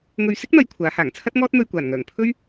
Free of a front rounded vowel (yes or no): no